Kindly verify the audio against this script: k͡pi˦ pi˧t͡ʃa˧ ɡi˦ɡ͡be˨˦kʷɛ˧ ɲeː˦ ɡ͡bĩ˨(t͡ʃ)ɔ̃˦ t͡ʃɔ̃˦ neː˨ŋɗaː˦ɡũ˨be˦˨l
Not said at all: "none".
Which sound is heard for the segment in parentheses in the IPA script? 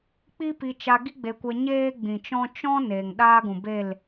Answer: t͡ʃ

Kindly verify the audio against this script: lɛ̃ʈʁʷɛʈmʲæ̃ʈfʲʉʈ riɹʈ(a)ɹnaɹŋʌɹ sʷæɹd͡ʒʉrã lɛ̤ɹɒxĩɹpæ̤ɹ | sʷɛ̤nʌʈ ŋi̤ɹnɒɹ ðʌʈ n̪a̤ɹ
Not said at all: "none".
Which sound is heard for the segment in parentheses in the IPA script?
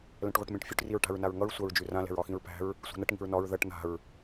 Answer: a̤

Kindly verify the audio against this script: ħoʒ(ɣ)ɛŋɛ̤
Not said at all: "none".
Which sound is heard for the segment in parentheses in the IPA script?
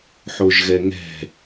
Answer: ɣ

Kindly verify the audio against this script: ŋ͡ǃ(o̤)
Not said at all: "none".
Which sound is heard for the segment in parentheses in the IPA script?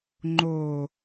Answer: o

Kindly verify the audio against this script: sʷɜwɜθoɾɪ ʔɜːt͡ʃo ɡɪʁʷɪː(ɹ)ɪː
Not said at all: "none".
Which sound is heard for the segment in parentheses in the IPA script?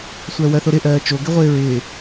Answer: ɹ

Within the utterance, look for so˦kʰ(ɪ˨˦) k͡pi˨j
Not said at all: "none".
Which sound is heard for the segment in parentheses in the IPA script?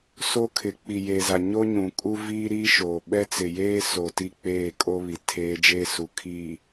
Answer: ɪ˨˦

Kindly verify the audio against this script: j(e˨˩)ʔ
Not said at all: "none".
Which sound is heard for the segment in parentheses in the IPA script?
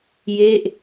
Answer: e˥˩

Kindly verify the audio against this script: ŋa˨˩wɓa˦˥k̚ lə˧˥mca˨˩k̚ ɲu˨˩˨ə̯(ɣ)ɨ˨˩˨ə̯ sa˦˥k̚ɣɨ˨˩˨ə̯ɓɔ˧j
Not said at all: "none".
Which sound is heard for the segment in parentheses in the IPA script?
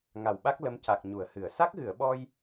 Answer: h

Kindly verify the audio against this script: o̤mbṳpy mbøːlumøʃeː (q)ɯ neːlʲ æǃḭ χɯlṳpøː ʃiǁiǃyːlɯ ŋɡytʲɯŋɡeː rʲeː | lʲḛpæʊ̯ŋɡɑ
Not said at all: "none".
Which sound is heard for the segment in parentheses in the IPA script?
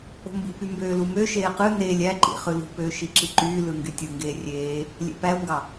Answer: q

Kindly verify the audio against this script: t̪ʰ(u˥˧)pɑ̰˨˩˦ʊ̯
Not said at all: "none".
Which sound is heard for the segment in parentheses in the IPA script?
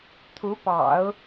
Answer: u˧˥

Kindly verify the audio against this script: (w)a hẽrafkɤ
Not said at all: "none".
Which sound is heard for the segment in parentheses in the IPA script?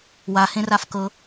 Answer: w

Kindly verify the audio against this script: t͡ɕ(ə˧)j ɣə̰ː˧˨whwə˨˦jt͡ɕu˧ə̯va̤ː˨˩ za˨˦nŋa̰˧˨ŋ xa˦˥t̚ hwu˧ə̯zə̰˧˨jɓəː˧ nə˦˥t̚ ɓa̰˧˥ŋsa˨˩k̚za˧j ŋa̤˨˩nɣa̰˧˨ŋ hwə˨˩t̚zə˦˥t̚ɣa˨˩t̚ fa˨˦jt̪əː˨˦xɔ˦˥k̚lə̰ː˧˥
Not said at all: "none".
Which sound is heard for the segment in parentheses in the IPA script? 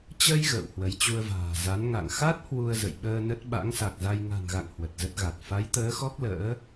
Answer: ə˧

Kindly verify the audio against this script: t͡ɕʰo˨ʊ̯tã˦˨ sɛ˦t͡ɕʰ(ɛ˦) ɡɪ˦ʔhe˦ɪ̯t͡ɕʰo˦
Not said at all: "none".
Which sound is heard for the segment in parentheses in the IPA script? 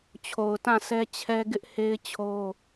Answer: ɛ˦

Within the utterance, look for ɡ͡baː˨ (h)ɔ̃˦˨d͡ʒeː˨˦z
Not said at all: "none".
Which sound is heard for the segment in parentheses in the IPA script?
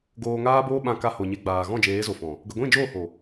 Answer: ɣ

